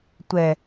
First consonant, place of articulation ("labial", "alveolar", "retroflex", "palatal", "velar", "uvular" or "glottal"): alveolar